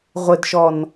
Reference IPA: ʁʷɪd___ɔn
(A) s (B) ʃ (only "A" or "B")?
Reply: B